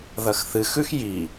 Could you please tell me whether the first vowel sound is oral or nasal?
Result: oral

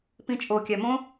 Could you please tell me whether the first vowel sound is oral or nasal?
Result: nasal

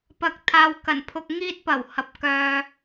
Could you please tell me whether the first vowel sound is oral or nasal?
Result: oral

